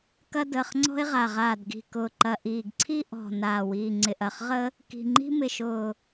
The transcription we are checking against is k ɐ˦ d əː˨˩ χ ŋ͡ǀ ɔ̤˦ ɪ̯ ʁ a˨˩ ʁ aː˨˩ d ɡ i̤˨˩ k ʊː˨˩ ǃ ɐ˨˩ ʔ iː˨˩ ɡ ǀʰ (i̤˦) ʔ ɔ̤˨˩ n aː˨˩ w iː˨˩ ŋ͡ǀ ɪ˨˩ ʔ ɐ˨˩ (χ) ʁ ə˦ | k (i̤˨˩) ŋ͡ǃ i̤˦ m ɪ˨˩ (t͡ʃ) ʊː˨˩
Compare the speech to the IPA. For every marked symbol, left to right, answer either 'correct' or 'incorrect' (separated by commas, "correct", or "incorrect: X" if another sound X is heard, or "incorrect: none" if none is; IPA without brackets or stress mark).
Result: incorrect: i˦, correct, correct, incorrect: ʃ